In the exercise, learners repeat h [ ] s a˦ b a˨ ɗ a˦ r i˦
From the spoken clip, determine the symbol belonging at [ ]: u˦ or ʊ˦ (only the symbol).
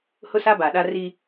ʊ˦